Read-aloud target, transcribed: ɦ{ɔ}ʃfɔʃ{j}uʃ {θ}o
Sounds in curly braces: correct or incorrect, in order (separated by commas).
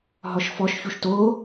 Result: correct, incorrect, incorrect